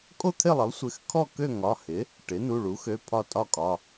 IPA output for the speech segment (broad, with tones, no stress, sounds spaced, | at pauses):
kʼ o˥˧ t̪ʰ ɪ˥˧ lˠ ɪ˩˥ lˠ sʷ ɪ˩˧˩ x kʰ ɔ˥˧ k ø˥˧ ŋ ɒ˩˧˩ h ɪ˩˥ | ʈ ɪ˩˥ n u˩˧˩ ɭ u˩˥ x ø˩˧˩ pʰ ɒ˥˧ tʼ ɒ˥˧ kʼ ɒ˩˧˩